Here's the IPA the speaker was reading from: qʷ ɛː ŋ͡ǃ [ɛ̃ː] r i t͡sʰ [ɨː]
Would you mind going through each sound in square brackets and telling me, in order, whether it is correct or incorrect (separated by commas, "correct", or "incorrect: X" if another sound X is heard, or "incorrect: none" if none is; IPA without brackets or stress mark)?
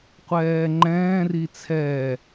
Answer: correct, incorrect: ɛː